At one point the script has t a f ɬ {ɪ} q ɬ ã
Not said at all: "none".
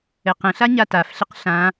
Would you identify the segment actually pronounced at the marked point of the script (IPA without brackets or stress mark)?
ɪ